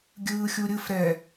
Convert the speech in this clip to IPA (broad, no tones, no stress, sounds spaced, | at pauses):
ɡʲ ɯː xʲ u ɾʲ ɯ f ɾ ɛ